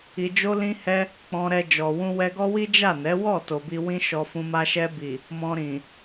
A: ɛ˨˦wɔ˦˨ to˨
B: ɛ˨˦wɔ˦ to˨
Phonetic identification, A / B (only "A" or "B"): A